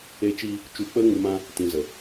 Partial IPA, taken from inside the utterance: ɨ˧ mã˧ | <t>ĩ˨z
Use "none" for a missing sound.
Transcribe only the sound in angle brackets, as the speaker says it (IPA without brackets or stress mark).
t